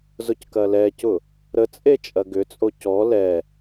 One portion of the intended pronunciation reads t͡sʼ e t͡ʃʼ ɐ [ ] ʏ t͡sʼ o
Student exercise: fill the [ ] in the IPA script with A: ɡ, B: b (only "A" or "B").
A